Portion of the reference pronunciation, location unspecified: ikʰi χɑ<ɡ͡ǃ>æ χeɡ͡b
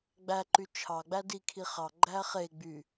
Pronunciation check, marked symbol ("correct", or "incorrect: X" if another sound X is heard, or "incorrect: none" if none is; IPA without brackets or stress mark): correct